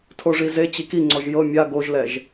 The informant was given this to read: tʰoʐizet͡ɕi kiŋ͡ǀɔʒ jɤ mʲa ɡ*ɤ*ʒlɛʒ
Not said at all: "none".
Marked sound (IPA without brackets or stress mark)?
o